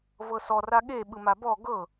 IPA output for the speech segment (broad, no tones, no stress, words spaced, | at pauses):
vɤsɔ raɠe ɓɯmabɔ ɡɤ